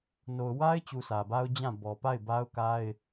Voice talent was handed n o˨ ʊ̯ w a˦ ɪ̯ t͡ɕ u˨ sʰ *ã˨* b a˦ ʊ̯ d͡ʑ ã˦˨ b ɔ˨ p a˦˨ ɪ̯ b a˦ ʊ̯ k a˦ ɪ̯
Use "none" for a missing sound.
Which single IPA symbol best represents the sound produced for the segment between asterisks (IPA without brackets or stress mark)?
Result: ä˨